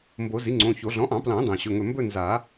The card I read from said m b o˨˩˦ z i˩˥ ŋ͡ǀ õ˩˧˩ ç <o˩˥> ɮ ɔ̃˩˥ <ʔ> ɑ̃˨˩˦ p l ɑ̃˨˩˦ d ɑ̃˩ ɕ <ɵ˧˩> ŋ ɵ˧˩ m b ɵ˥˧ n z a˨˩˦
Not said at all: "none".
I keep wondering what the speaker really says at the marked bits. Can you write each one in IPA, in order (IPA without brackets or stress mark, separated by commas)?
o˨˩˦, ʔ, ɵ˩˧˩